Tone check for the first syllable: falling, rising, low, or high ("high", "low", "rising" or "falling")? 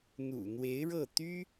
low